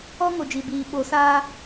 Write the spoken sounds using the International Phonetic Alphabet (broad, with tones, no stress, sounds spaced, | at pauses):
ɔ˦ ŋ o˨ d͡ʒ i˨ b iː˨ ɓ o˨˦ s aː˦